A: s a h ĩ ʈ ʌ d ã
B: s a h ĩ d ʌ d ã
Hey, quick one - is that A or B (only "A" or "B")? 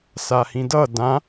B